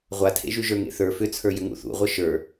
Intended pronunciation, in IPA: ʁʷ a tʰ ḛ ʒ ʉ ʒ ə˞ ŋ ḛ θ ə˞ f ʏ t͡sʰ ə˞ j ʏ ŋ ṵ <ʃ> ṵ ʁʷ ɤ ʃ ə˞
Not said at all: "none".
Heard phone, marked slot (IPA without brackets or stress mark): θ